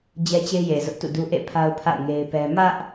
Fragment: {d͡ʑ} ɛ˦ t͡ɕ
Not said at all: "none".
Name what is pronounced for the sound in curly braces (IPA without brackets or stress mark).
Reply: d͡ʑ